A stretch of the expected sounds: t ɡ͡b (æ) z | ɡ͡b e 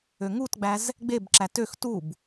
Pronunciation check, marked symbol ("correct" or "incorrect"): correct